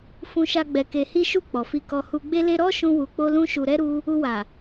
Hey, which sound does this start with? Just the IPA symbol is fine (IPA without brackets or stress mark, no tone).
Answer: f